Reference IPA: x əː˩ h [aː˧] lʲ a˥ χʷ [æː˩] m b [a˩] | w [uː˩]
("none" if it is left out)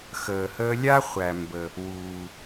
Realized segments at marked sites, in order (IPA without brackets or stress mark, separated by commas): əː˧, æ˩, ə˩, uː˩